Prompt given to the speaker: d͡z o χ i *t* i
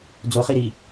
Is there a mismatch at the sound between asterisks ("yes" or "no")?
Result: yes